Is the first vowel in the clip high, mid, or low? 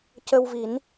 mid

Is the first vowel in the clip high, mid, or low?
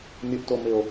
high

